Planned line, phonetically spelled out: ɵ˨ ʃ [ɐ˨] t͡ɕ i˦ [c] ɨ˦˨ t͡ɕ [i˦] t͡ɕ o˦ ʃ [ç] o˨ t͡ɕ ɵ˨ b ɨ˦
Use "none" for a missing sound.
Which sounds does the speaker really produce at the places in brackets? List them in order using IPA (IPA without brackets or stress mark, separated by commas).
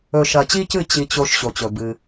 ɐ˨, c, i˦, ɕ